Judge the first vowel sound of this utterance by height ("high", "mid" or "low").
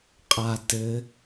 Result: low